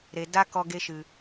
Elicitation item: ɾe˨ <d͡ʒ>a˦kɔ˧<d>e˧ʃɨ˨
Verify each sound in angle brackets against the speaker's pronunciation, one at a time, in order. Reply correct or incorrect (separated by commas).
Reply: incorrect, incorrect